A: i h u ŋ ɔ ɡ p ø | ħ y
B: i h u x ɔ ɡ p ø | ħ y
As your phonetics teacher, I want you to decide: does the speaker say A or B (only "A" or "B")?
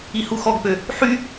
B